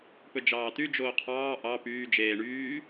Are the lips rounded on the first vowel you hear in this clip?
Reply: yes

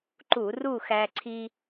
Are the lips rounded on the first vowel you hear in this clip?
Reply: yes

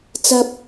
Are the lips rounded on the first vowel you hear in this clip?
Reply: no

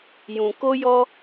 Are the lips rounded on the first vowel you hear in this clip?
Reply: yes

